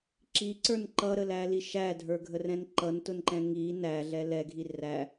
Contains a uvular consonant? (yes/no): no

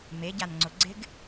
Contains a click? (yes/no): yes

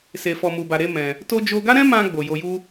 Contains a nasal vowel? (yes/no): yes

